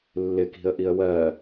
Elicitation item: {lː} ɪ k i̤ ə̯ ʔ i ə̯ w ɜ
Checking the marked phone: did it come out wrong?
no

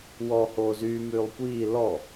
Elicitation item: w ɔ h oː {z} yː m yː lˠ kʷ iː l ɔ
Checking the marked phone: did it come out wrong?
no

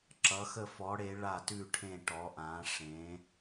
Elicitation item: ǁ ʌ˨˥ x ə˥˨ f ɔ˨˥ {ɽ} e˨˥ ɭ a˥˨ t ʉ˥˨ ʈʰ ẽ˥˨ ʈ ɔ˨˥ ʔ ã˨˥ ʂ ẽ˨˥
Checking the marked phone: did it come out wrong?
no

